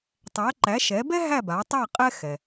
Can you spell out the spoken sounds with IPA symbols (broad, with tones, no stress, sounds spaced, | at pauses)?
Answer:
tˤ æ˩˥ ǃ æ˩˥ ʃ ɛ˩˥ b ɛ˥ ɦ æ˥˩ b a˩˥ tˤ æ˥˩ qʼ ɛ˥ x ɛ˩